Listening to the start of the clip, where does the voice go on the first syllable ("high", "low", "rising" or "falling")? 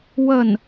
falling